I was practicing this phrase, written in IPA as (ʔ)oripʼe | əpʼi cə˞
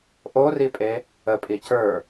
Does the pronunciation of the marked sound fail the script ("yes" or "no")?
no